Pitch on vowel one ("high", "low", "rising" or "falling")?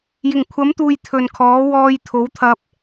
low